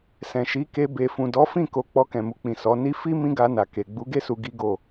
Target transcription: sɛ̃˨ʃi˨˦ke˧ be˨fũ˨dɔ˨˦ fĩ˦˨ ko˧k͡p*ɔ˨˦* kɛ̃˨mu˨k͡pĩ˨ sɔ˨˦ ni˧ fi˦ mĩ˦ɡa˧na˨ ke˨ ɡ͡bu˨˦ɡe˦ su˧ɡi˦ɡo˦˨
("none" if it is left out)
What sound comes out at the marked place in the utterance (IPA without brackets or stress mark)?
ɔ˧